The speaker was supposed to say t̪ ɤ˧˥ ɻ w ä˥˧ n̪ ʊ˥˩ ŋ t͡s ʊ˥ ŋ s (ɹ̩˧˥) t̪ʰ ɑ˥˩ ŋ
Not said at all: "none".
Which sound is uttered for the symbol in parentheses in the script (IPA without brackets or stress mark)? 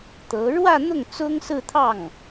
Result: ɹ̩˥˧